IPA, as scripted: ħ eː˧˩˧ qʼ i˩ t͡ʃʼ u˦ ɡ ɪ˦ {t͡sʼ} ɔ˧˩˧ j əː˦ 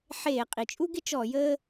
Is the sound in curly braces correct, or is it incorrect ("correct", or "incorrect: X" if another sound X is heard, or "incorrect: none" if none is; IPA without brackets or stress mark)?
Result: incorrect: t͡ʃ